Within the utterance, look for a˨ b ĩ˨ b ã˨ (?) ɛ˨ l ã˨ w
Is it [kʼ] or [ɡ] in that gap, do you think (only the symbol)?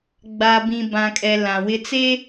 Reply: kʼ